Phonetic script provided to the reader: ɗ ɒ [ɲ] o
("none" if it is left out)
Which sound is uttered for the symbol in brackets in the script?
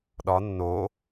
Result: nː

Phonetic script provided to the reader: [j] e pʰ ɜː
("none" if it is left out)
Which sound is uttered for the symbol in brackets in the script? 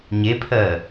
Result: ɲ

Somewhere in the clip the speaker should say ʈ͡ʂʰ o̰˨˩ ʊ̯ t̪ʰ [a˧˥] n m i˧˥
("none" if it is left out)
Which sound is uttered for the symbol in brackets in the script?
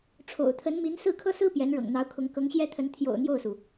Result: ə˧˥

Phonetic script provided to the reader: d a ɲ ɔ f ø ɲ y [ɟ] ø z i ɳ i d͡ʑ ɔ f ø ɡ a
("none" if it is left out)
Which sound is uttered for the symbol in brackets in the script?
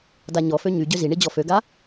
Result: ɟ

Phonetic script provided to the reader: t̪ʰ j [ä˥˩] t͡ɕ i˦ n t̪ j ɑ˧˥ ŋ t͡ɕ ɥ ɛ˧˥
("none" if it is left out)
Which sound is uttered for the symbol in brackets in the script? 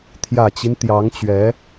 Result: ä˨˩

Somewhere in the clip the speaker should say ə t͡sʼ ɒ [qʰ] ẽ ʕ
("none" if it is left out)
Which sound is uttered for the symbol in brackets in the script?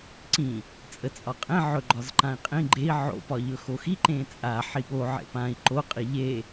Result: qʼ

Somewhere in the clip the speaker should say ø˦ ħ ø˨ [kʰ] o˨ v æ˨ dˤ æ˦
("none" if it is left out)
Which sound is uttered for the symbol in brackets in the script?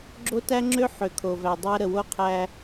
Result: kʰ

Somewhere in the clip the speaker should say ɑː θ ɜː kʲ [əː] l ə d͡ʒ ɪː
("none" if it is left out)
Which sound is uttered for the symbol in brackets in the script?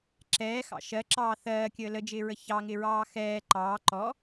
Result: əː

